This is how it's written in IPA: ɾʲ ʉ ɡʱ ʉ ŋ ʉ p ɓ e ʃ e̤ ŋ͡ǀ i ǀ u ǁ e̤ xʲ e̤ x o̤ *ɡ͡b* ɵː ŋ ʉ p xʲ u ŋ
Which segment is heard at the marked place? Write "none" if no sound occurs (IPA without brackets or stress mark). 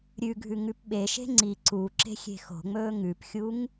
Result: ŋ͡m